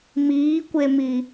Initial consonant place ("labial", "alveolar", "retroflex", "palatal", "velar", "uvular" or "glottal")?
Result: labial